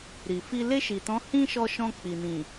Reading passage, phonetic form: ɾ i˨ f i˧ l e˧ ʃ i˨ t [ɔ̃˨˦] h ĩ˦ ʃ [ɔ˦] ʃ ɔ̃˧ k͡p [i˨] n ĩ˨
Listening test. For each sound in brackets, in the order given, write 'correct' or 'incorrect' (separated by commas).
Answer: correct, incorrect, correct